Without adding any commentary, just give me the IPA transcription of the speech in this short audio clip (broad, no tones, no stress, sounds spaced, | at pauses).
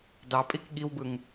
d ɑ pʼ i k ɠ i w b ɯ ŋ